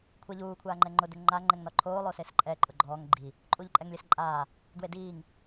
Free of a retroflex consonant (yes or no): yes